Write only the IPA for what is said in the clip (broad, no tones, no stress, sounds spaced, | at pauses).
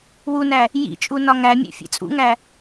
w u n æ | j ḭ t͡ʃʼ u n ɒ ŋ æ mʲ ḛ fʲ ḛ t͡sʼ ṵ ŋ æ